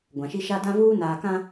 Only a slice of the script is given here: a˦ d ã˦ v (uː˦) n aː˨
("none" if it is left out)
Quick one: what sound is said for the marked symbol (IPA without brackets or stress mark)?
uː˦